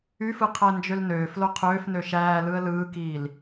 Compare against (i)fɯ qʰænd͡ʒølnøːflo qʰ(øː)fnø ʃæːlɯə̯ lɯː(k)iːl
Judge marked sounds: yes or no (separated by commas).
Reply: no, yes, yes